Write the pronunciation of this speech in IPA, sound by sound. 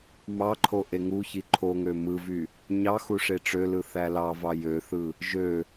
m ɑ ǃʰ o ʔ e ŋ u ç i ǃʰ o ŋ ø m ɯ v y | ɲ ɑ x u ʂ e ʈ͡ʂ ø l ɯ θ æ l ɑ v ɑ j ø θ ɯ | ʒ ø

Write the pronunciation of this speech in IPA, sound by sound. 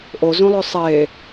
ʔ o z ũ lˠ ɵ sˤ e

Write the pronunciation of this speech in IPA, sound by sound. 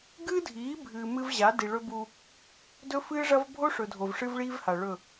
ɡ ɨː˦ dʱ iː˨˦ bʱ ɨː˨ m ɨ˦ v ʑ a˨˦ d i˨ ɭ ɵ˦ b u˦ | d ɵ˦ f ɨː˦ ʐ ɐ˦ v bʱ o˦ ʂ ɵ˨ dʱ o˨ v ʂ ɨ˦ v ɭ iː˦ v h a˨ ɭ ɵ˦˨

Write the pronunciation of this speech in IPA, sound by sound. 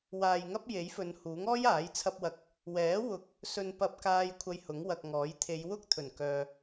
w aː˨ j ŋ ɐ˥ p̚ j e˨˥ j f ɵ˨˧ n h uː˨˥ ŋ ɔː˥ j aː˨˥ j t͡sʰ ɐ˧ p̚ w ɐ˨ k̚ | w ɛː˨˥ w ʊ˨ k̚ | s ɵ˧ n p ɐ˧ p̚ k aː˧ j kʷʰ ɐ˧ j h ʊ˨˥ ŋ w ɐ˨ k̚ ŋ ɔː˨˥ j t̪ʰ e˨˧ j w ʊ˥ k̚ t̪ʰ ɵ˨˩ n k œː˨

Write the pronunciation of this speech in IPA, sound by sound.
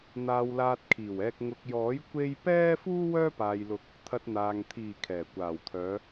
n̪ aː˧ w l aː˧ t̚ kʰ iː˨˩ w ɛː˧ k̚ ŋ ʊ˧ k̚ j ɔː˨˥ j kʷ e˥ j p ɛː˥ f uː˥ w œː˥ p aː˨ j l ʊ˨˥ k̚ | t̪ʰ ɐ˧ t̚ n̪ aː˨ ŋ t̪ʰ iː˨˩ kʰ ɛː˨˩ kʷ aː˨˩ w t̪ʰ œː˨˧

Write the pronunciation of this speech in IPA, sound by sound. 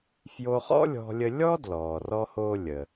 f j o˧ χ ɔ̰˥ lʲ ɔ̤˧ lʲ ə˧ lʲ ɔː˥ d l ɔː˩ r ɔ˧ h oː˧ lʲ ə˩

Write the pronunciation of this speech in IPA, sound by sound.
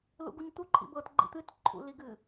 l ṵ ɡ u ɲ t̪ u ǃʰ ḭ b ɤ t ɡ͡ǃ ḭ t̪ ɨ t ǃʰ ṵ l i ɡ ɨ

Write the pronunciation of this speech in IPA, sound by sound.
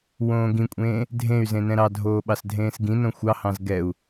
w õː ɡ ĩ kʷʼ ẽː | dʱ ẽ y̯ z ẽ n ɛ̃ ɾ ɑ dʱ oː ɓ ɑ s dʱ ẽː s ɡ ĩ n õ xʷ ɑ h ɑ̃ z ɡ ɛ u̯

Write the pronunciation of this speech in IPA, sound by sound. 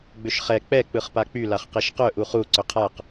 ɡ͡b ʏ ʃ χ ɛ k͡p ɛ k͡p ɯ χ p a k͡p y l a χ q e ʃ q œ ʔ u χ u ǀ ʏ qʰ a q

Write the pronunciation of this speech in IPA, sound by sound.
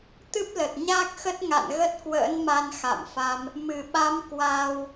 t̪ ɨ˦˥ p̚ l ə˨˩ t̚ ɲ aː˦˥ k̚ x ə˦˥ t̚ ŋ a̰˧˨ n ɣ ə˦˥ t̚ k w ə̰ː˧˥ n m a˧ n x a̰˧˨ m f a˧ m | m ɨ˧˩ ɓ a˨˦ m k w aː˧ w

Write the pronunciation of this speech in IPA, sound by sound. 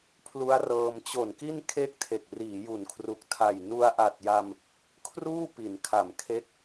pʰ l u˦˥ a̯ r ɤː˧ m t͡ɕ o˨˩ n k i˥˩ n kʰ e˥˩ k̚ tʰ e˨˩ k̚ r iː˩˦ j u˩˦ n kʰ r u˨˩ k̚ tʰ a˨˩ j n u˧ a̯ ʔ a˨˩ t̚ j a˧ m | kʰ r uː˥˩ p i˩˦ n kʰ a˨˩ m kʰ e˦˥ k̚

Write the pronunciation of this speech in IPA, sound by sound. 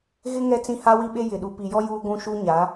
ɣ ɪ˦ ŋ ɛ˦ t͡s ĩ˦ h a˦ w i˦ ɓ e˦ j ɪ˨ ɗ u˨ p i˨ j ɔ˦ j uː˦ ɡʷ ũ˦ ʃ u˦ ɲ a˨˦

